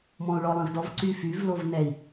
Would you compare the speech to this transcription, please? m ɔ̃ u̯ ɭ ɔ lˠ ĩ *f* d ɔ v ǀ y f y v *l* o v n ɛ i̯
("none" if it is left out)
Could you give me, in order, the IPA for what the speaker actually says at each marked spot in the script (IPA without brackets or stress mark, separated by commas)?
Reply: v, l